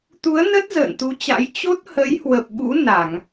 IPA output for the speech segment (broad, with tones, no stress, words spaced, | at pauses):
t̪u˨˦ə̯nə˦˥t̚ zə̰ː˧˨nt̪u˨˦t͡ɕa̰˧˥j t͡ɕo˦˥t̚hə˨˦j hwə˨˩p̚ɓṵ˧˥ na˧˩˨ŋ